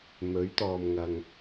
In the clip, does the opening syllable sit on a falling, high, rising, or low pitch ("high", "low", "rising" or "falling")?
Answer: rising